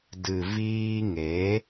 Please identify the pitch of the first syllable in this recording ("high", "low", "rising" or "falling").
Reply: low